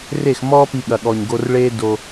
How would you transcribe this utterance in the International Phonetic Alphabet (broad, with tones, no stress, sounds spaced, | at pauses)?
r e˦˨ x m ɔː˦ p i˧ ɠ ɐ˨ ɠ ɔ˨ ɲ ɡ o˧ r ɭ eː˦ d o˧